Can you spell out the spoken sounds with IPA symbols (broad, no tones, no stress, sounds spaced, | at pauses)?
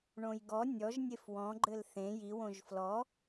ɳ õ j ɡ ɔ nʲ ɔ ʒ nʲ e f w ɔ̃ ɡ͡ǃ ɘ l θ ẽ j i w õ ʒ f l ɔ